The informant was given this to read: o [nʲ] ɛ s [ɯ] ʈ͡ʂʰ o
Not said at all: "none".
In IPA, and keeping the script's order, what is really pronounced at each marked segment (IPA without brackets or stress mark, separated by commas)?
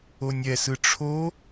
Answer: nʲ, ɯ